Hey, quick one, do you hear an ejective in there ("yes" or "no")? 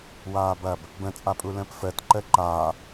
yes